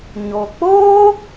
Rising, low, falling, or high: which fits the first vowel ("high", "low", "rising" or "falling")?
low